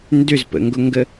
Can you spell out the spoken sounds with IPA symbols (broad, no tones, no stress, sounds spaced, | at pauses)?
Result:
n d ʏ z p ə̰ ŋ ɡ ʊ ŋ ɡ ə